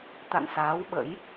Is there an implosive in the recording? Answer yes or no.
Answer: yes